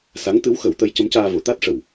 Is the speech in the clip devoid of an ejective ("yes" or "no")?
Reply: yes